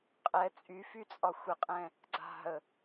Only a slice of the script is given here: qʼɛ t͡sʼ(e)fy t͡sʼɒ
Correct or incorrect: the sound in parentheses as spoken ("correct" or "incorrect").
incorrect